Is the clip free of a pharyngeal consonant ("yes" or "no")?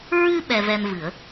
yes